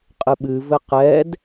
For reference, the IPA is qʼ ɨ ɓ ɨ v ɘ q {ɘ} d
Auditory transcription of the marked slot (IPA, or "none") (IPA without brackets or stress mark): ɛ